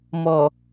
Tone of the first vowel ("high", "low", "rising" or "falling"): low